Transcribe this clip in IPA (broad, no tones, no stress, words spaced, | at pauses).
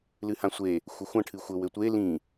lɨhãsʷe | xʷɘxʷɐ̃ ʈʰɨxʷɘ wɘtʷe lĩ